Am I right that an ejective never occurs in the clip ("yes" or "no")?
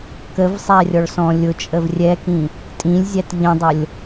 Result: no